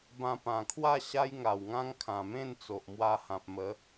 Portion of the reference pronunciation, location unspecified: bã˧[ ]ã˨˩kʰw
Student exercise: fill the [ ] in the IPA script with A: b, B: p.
B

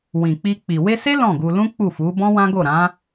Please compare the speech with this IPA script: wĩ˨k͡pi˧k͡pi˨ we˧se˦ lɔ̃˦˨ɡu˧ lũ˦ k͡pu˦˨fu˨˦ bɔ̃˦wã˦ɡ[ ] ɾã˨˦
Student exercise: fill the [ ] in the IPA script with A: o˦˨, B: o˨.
A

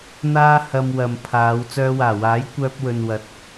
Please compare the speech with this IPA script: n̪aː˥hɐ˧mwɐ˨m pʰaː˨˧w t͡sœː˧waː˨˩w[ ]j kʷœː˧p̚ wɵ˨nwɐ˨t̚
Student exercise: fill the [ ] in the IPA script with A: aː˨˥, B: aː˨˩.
A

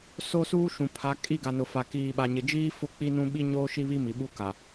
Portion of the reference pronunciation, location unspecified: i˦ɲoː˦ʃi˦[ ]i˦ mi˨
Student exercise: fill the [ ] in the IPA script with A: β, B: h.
A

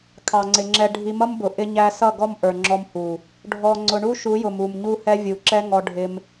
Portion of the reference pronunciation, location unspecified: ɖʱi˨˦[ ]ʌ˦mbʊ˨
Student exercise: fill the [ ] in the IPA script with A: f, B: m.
B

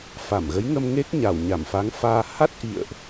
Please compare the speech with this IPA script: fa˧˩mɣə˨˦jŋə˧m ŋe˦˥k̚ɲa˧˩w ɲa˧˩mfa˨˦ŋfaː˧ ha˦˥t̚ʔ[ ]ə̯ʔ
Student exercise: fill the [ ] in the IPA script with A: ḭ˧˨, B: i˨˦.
A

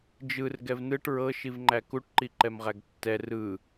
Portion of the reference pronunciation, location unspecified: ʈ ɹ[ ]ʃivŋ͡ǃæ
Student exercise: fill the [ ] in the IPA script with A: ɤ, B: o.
A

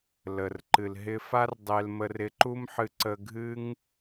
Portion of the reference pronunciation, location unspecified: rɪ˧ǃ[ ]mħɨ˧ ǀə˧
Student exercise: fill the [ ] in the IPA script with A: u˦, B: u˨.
A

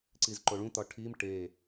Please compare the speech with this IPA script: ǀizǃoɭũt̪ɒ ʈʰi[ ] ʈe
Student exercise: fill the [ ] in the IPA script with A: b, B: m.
B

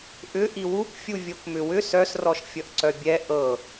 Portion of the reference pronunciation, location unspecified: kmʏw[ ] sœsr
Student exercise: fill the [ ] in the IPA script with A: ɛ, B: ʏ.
B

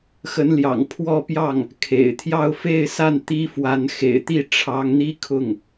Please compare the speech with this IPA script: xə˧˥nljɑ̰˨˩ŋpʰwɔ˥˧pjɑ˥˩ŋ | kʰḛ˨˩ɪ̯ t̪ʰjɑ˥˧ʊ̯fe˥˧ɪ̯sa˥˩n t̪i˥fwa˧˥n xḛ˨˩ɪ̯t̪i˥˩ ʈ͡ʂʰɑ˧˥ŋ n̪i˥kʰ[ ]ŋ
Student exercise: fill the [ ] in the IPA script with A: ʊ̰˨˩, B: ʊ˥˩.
B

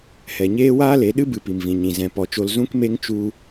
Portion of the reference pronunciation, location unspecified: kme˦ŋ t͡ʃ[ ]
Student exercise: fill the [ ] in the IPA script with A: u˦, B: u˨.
A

